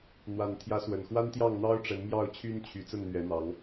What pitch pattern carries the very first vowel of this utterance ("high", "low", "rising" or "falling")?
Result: low